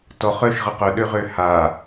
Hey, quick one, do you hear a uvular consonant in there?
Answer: yes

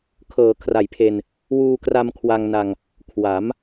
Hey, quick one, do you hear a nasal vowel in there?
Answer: no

